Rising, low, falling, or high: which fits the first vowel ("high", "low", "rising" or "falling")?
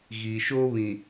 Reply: low